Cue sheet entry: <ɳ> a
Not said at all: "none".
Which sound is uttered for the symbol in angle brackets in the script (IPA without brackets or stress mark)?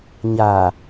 ɲ